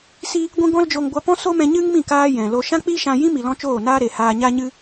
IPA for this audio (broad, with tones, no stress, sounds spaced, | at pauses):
s i˦ | ɡʷ ĩ˧ ɡ ɔ̃˦ l d͡ʒ o˧ ŋ ɡʷ a˧ p ɔ̃˦ s o˦ m ɛ̃˧ ɲ ɨ˦ ŋ m ĩ˦˨ k aː˧ j ɛ̃˨ l o˧ ʃ ã˦ k͡p i˦ ʃ ã˧ j ĩ˦ m i˨ l ɔ̃˦ t͡ʃ oː˦˨ n aː˦ ɾ e˨ h aː˧ ɲ a˦ ɲ ɨ˦